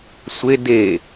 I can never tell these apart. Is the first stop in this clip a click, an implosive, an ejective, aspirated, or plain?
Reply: plain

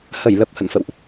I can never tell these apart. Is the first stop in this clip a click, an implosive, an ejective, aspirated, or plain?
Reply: plain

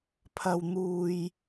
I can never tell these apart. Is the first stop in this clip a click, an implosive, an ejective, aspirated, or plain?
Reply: aspirated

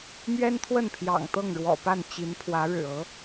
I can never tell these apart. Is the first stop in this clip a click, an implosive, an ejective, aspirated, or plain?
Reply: aspirated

